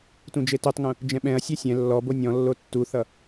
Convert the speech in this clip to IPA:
tũd͡ʒetotˤŋũ | d͡ʒɛ̃ɓɛ̃ɐ̯ sʲɛsʲɛ̃ lːɔbo nʲɔ̃lːo tːuθʌ

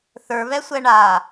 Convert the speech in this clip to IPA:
θə˞βɛsʷɛ ɳa

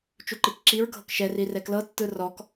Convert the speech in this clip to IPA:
t͡ʃuǃikǁiɹ ɡʱɤkʃɛ rirɛklɤ tːɯrɔk

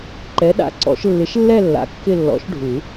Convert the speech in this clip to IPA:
ǃɛ˨˥ɗa̰˩˧˩ǀɔ̰˨˩˦ʃ lːɪ˨˥ʃlːɛ˥˧lːa̰˨˥ kːɪ˥˧lːɔ̰˨˥ʃɖʱu˨˩˦

